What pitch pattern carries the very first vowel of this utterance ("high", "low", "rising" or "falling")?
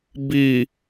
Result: low